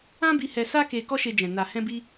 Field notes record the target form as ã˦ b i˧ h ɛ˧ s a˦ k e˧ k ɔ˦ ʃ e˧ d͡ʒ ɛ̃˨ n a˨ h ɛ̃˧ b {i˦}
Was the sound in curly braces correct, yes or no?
no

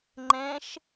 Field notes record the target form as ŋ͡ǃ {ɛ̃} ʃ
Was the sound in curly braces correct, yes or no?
yes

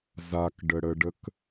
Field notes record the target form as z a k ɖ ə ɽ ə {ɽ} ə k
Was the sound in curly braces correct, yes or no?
no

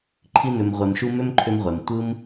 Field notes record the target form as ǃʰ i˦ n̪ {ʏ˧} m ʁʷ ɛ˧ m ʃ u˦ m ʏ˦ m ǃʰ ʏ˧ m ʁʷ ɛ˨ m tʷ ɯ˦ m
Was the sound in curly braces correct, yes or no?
yes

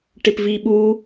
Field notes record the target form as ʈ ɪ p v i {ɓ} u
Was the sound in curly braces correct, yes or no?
yes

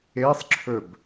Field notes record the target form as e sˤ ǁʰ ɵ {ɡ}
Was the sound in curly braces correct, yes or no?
no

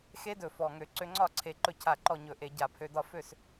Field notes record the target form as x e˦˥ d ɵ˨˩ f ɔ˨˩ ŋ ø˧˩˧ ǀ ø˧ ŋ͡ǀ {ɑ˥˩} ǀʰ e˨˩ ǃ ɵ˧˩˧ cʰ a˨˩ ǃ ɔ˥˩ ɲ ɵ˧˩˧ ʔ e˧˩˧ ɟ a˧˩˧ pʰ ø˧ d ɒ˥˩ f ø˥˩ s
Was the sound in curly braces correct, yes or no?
no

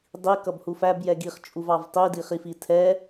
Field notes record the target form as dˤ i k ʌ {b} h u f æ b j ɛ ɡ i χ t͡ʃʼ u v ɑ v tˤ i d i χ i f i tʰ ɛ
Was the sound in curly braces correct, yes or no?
yes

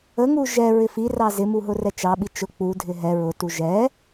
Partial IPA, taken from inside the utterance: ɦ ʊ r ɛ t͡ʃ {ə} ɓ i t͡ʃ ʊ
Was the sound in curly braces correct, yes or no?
no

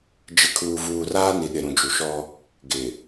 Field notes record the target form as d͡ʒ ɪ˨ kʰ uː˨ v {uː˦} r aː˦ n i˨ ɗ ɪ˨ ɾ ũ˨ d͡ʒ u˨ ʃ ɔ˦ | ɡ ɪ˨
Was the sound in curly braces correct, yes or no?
no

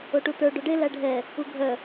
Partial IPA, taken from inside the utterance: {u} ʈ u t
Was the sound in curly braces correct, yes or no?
no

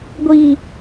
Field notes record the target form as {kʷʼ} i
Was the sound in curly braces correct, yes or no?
no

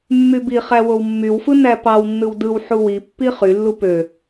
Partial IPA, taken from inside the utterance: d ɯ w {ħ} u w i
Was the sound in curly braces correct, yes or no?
yes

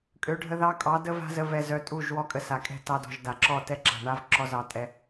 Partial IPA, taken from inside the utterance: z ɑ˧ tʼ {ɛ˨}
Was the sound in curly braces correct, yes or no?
no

